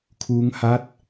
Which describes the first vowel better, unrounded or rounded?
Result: rounded